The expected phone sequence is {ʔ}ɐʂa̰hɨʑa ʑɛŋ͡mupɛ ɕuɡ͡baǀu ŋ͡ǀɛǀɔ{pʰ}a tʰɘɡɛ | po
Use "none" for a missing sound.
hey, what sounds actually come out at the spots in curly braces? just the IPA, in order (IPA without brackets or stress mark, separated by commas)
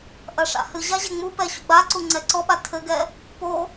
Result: ʔ, ɓ